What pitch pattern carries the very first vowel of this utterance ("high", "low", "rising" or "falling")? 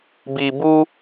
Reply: low